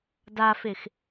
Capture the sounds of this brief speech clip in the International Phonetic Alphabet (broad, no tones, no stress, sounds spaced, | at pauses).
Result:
d a f e x